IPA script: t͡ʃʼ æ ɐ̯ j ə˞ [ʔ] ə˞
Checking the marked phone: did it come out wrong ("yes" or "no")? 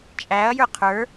yes